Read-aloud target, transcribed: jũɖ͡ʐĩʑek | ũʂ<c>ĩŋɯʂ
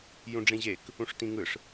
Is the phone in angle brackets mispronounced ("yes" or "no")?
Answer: yes